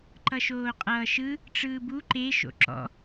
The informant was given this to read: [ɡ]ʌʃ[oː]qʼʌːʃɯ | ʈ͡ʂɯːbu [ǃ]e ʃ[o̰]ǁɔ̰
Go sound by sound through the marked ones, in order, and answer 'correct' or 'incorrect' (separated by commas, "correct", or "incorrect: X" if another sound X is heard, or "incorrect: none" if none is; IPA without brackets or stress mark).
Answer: incorrect: ǃ, correct, correct, correct